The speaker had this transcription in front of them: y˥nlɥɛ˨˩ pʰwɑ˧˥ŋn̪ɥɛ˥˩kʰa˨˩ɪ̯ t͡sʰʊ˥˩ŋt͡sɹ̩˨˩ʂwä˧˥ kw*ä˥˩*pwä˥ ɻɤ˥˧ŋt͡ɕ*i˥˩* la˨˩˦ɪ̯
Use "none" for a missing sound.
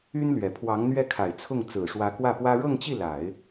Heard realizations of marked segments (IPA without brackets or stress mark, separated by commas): ä˥˩, i˥˩